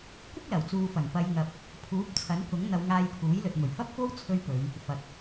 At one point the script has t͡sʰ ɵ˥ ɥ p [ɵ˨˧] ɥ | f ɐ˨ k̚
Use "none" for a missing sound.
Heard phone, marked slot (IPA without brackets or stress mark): ɵ˨˧